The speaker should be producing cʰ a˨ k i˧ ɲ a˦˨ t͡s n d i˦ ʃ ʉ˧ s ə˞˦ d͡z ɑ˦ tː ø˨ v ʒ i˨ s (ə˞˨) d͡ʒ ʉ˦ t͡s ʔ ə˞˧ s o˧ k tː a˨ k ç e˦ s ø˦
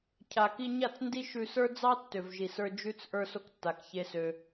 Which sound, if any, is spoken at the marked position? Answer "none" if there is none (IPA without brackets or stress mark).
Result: ə˞˧